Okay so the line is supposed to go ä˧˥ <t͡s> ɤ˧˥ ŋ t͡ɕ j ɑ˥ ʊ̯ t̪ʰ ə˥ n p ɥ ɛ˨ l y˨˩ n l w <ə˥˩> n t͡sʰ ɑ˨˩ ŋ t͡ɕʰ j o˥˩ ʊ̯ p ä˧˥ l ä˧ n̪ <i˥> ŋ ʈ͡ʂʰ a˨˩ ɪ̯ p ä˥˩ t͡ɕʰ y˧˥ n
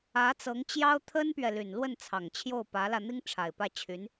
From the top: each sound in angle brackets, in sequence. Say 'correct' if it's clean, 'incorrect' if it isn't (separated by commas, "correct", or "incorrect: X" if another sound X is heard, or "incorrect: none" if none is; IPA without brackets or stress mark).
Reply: correct, correct, correct